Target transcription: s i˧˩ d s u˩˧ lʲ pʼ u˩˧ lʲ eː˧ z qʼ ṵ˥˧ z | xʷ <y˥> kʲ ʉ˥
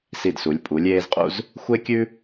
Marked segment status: incorrect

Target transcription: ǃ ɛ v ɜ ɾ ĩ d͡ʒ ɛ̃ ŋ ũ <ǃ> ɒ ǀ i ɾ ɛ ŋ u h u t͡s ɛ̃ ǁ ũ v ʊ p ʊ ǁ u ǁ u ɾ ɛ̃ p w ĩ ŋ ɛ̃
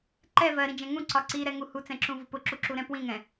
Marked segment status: incorrect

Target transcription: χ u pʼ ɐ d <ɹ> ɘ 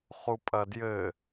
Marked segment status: incorrect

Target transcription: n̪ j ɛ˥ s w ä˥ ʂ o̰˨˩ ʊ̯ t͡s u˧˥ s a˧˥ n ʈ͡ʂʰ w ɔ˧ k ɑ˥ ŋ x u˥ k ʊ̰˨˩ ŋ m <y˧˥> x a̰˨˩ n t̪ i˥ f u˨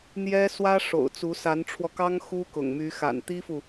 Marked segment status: correct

